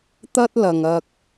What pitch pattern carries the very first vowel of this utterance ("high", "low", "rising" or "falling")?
high